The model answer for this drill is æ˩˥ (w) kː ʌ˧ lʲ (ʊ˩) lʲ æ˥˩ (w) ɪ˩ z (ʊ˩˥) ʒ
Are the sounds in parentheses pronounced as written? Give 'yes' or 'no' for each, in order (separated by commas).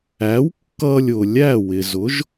yes, yes, yes, yes